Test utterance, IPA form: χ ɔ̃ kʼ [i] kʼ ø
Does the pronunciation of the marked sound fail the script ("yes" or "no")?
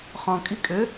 no